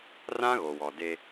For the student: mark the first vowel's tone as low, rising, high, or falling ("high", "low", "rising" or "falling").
high